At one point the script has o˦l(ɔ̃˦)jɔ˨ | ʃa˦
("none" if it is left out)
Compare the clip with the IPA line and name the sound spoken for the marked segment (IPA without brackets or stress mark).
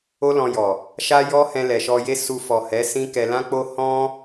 ɔ̃˧